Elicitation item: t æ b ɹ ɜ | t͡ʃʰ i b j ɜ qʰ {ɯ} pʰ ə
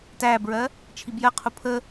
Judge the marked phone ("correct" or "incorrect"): incorrect